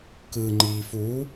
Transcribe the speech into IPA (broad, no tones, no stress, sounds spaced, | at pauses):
k ɯ ŋ͡ǃ iː f uː